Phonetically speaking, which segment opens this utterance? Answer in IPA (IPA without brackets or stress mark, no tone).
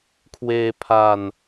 kʰ